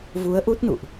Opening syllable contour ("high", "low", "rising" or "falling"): rising